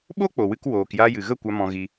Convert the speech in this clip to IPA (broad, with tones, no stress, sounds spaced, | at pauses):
ɓ o˦ k͡p o˨ w ɨ˧ k w oː˧ k j a˦ j ɨ˨ ɣ ə˦˨ kʷ a˦ m ɔ̃˦ ɣ i˦